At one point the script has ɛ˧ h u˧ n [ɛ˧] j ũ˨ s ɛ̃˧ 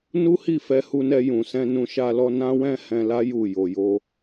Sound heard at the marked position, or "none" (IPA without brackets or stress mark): ɛ˧